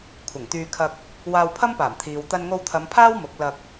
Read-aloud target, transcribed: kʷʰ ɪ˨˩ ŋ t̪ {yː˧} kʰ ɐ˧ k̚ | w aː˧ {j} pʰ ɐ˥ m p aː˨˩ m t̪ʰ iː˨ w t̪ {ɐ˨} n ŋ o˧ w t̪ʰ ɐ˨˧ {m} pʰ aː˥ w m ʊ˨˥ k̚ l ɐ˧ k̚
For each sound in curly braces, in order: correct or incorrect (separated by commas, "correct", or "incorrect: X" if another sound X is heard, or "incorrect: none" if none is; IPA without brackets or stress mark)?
correct, incorrect: w, incorrect: ɐ˧, correct